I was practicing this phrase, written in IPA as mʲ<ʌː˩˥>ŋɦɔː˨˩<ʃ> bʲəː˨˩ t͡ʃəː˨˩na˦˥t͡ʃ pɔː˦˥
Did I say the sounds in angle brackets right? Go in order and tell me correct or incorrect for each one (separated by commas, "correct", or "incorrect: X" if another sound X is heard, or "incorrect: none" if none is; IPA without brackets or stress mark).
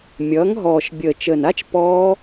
correct, correct